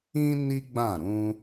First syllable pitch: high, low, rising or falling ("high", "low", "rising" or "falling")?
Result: high